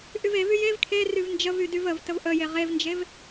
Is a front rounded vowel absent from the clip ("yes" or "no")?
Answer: no